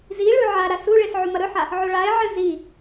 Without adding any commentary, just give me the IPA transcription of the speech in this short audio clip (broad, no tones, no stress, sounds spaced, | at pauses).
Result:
z i ɭ ʉ ʕ a ɾ a s u ɭ e s ʕ u m ɐ ɾ ɵ ħ a | ʕ o ɭ a ɪ̯ ʕ ɨ z i